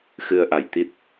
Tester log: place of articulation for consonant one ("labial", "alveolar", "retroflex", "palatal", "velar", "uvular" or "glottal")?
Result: velar